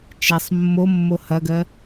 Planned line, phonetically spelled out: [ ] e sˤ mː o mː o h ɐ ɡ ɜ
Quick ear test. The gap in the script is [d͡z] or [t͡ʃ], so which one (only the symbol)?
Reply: t͡ʃ